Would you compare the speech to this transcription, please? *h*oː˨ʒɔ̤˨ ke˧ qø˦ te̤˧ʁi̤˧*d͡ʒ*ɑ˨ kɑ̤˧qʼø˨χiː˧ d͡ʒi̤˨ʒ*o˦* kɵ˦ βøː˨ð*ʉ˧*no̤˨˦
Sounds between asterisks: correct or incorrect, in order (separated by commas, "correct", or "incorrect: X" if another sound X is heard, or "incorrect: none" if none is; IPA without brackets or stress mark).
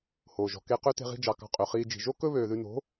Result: correct, correct, correct, correct